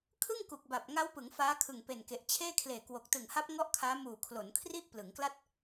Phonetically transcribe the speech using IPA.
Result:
kʰ ɯ˥˩ ŋ k u˨˩ k̚ b a˨˩ p̚ ŋ a˦˥ w p ɯ˩˦ ŋ f aː˦˥ kʰ ɯ˨˩ ŋ p e˨˩ n k e˨˩ ʔ t͡ɕʰ eː˥˩ kʰ l eː˨˩ k w o˨˩ k̚ t ɯ˨˩ ŋ h a˦˥ p̚ ŋ ɔ˥˩ ʔ kʰ aː˦˥ m uː˨˩ kʰ l o˩˦ n kʰ r i˥˩ ʔ p l ɯ˩˦ ŋ k l a˥˩ t̚

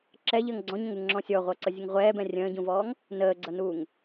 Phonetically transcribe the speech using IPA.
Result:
ǁ ɛ ʎ əː ŋ ɡ͡ǀ ɔ̃ ɲ ə̃ ŋ u ŋ ŋ͡ǁ ɔ̃ sʲ ɔ ʁʷ ʌː ǀ ə zʲ ə ŋ ʁʷ ɛː b ɛ̃ rʲ ə̃ː ɟ ũ v ɔː ŋ | n əː ɡ͡ǀ ʌ n uː ŋ

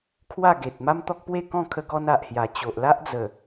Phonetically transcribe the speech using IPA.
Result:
kʰ w a˥˧ ɡ e˨ t̚ m a˦ m t̪ ɔ˦ k̚ p w e˥˧ k ɔ̃˥˧ kʰ ə˧ ɡ ɔ˧ n a˨ ʔ h j a˨˩ t͡ɕ o˨ ʔ l a˦ ʔ d͡z ə˨˩

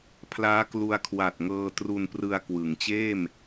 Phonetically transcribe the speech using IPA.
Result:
pʰ l aː˦˥ k l u˧ a̯ kʰ w a˨˩ t̚ ŋ ɤː˧ t r u˧ n p r ɯ˧ a̯ k w ɯ˩˦ ŋ t͡ɕ eː˥˩ m

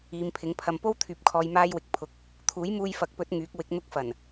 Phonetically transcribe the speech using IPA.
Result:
iː˨˧ m pʰ ɪ˨˥ ŋ pʰ ɐ˨ m p o˥ w t̪ʰ yː˨ p̚ kʰ ɔː˧ j m aː˥ j w ɪ˨ k̚ pʰ ʊ˨˥ k̚ | t̪ʰ uː˨˥ j m uː˧ j f ɐ˨˥ k̚ p ɵ˨˥ t̚ ŋ yː˨˥ k̚ w ɪ˨˥ k̚ n̪ ʊ˥ k̚ f ɐ˨˩ n

